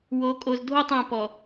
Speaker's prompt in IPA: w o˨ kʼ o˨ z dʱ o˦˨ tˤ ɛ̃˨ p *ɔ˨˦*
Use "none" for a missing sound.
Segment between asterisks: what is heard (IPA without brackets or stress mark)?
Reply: ɔ˨